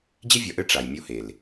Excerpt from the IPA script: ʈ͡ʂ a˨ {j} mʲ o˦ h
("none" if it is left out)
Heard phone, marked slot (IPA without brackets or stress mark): j